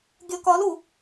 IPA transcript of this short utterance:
ɡʲʌkɒlu

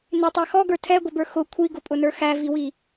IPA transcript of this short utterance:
nɪtˤɛ xɔɡə˞ tʰɛɡʷɪbə˞ xʊ kʷʰiɡʊpʼʊnə˞ xæviwi

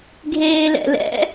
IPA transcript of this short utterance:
ɡʱeːlɛ̰lɛ̰

